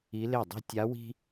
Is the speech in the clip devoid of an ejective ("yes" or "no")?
yes